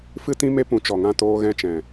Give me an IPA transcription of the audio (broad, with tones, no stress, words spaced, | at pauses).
fɨ˧tĩ˧ me˦pũ˨˦ t͡ʃɔ˨ŋã˧toː˧ ɣɛ̃˧t͡ʃɛ̃˨